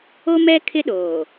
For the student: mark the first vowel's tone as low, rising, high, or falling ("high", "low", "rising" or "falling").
high